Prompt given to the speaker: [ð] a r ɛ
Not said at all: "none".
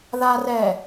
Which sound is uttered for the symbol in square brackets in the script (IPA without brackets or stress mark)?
ð